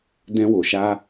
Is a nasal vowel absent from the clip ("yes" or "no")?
no